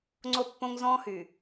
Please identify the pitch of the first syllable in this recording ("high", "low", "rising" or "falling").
falling